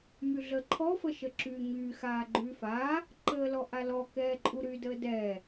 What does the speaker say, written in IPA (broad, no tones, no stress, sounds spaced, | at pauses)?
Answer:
m y ɮ əː ǃʰ ɔ f ə ʃ ə ǁ yː ɲ yː x aː ɡ͡ǃ yː f aː | ǃ əː l ɔ ʔ a l ɔ k ɛː ǃʼ u ɾ y d əː d ɛː